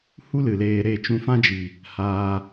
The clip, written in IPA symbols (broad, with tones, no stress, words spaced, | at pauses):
hu˦ lɨ˨leː˧ɾe˦˨ t͡ʃũ˧fã˦d͡ʒi˨ | haː˧